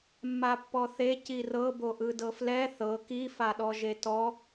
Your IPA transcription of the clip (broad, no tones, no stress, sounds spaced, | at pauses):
mː a pː ɔ θ e c i r ɤ b o ʔ ɯ d ɤ f l ɛ θ ɤ k i f a ɗ ɔ ʒ e t ɔ